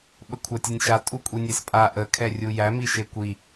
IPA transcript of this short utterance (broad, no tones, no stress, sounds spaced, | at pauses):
ɓ ə kʷʰ a tʲ ə nʲ ʃ a tʼ u kʷʼ i nʲ e s pʼ a ʔ ə kʰ ɛ rʲ u j æ m i ʃ e kʷ i